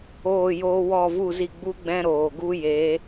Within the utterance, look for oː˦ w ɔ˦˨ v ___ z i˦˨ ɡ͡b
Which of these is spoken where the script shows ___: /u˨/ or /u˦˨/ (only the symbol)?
u˦˨